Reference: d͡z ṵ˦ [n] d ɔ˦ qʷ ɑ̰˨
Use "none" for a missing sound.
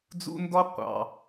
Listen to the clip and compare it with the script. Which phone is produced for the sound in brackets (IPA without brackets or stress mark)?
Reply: n